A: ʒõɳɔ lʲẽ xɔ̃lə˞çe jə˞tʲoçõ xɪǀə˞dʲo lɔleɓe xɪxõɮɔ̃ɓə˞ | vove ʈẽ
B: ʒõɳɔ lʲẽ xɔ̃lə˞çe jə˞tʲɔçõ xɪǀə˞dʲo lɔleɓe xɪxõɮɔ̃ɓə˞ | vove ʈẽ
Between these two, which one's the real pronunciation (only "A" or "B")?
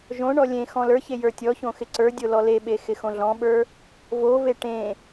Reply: B